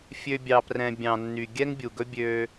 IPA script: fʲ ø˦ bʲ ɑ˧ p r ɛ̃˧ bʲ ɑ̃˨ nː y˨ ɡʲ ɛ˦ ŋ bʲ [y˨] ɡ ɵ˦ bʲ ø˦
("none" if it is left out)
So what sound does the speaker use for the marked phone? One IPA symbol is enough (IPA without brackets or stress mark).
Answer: u˨